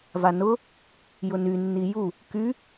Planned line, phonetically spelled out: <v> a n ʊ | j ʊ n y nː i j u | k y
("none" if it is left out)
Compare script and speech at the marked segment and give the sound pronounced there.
v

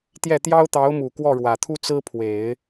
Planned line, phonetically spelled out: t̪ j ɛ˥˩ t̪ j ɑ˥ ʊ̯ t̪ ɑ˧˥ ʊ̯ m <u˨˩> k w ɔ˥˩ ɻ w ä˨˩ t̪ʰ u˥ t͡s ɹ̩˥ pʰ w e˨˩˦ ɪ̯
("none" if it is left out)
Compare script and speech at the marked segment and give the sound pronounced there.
u˨˩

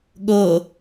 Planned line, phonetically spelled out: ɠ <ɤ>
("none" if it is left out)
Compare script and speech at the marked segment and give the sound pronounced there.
ɤ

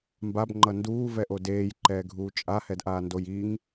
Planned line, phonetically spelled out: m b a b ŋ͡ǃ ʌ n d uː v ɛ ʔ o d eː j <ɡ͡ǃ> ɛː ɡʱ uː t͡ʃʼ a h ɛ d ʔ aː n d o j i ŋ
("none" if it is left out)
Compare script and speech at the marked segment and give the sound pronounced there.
ǃ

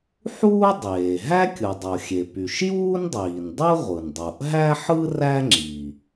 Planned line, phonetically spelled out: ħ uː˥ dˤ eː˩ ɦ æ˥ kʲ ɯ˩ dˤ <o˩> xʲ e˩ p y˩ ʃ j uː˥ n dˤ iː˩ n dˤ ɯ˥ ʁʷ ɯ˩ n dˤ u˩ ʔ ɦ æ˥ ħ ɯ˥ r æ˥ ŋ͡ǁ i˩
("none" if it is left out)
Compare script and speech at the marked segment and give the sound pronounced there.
o˩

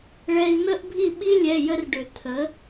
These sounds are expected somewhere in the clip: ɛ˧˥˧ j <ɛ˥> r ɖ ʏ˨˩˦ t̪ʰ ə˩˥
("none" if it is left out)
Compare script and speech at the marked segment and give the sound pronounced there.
ə˥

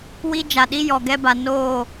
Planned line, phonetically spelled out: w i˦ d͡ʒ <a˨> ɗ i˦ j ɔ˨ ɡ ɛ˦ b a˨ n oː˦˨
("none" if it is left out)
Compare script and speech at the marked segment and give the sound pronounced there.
a˨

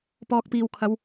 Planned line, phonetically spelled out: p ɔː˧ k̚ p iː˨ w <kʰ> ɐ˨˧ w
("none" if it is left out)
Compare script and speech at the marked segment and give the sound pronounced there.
kʰ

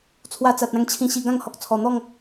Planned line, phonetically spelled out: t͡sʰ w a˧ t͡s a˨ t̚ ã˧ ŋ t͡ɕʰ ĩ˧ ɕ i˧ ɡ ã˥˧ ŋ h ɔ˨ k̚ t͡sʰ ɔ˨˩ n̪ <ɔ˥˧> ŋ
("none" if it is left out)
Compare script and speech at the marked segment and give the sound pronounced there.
ɔ˥˧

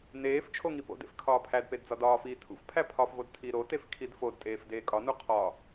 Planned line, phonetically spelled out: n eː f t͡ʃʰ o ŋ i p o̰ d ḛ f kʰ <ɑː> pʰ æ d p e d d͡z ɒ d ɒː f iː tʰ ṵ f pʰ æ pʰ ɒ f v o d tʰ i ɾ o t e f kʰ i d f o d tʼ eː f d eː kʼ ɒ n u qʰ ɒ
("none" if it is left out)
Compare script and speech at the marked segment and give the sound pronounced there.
ɒː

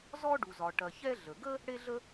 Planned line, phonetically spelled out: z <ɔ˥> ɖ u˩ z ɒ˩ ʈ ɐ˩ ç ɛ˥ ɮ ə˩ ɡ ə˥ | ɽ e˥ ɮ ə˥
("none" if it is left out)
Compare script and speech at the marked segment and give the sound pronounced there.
ɔ˥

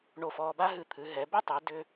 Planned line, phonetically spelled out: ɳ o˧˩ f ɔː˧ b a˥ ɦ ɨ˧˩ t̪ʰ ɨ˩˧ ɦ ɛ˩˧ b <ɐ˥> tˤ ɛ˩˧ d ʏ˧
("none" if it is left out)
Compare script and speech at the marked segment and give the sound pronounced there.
ə˥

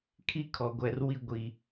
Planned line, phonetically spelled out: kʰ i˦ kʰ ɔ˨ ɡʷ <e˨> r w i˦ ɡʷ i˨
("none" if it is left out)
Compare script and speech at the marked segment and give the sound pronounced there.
ɛ˨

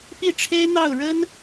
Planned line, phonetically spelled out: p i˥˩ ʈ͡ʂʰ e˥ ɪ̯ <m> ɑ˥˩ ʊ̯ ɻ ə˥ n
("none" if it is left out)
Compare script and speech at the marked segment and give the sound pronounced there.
n̪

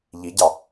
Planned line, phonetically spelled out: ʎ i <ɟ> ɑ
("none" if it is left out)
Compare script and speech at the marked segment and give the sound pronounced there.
ɟ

